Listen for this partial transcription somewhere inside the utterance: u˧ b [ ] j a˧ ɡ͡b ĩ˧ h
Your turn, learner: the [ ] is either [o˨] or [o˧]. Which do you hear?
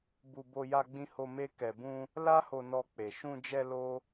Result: o˧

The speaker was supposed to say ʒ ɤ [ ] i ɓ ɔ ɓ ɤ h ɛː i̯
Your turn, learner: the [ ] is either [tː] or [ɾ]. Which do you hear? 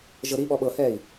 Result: ɾ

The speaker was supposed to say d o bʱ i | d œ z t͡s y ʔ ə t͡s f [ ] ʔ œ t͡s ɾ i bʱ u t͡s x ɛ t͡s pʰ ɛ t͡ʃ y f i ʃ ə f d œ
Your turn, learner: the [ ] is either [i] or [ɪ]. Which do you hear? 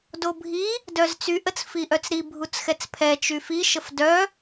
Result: i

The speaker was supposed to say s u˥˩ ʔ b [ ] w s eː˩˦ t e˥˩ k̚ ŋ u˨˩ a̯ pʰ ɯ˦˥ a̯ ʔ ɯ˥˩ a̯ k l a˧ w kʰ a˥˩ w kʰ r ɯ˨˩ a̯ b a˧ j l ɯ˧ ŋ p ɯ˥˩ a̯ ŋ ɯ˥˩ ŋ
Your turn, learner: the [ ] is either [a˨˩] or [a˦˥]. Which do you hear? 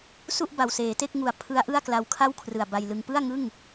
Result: a˨˩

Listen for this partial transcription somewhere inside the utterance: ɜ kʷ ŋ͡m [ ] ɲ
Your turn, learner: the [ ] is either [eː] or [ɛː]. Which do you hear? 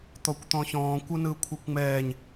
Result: ɛː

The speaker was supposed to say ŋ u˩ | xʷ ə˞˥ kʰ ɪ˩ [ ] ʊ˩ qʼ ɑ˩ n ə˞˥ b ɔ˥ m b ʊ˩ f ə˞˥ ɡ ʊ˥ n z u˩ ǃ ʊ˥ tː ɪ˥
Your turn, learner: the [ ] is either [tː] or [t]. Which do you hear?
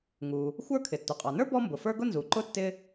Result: tː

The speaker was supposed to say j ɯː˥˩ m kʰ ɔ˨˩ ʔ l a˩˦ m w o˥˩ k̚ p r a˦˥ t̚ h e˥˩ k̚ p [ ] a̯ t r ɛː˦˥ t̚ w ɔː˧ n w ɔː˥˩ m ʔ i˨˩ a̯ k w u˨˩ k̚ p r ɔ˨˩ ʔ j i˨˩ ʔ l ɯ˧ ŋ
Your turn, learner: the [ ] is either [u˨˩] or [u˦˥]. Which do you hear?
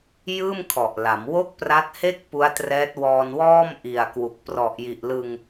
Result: u˦˥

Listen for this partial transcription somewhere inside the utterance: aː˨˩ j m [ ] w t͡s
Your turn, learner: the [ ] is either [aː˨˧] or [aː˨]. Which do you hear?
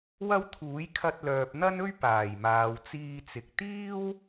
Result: aː˨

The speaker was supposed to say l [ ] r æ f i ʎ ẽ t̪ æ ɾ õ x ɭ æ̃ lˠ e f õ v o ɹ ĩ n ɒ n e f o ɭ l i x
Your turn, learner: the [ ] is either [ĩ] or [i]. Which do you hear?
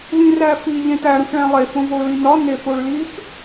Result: ĩ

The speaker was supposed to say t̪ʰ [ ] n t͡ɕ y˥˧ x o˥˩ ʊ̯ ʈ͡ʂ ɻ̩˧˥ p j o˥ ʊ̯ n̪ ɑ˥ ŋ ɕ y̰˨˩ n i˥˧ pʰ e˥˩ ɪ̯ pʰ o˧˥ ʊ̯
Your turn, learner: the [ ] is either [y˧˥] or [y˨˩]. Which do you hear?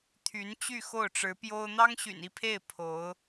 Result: y˧˥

